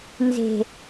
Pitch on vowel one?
low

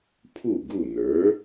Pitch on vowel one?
falling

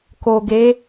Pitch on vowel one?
low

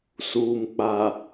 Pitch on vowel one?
low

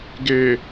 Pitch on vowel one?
low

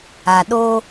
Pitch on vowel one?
low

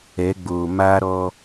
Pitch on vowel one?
rising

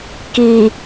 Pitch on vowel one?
low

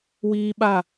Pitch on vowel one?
high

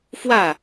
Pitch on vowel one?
falling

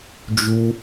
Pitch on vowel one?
high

